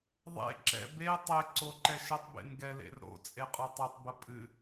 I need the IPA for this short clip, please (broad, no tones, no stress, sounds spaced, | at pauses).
ðˤ ḛ ǁ ɛ̰ b e tˤ e ǀ o ǃ ɛ ʃ ə tˤ b ḛ n ɡ ɛ l ḛ r ɾ o̰ t͡sʼ e qʼ o tˤ e tˤ b ə pʼ ɨ